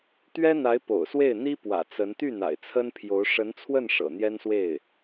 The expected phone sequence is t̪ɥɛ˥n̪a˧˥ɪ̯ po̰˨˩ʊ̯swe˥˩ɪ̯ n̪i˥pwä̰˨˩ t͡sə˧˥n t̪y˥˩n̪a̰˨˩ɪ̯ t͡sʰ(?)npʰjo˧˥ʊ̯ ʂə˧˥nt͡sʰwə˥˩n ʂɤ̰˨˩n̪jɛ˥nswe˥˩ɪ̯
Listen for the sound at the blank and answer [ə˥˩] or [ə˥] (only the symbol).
ə˥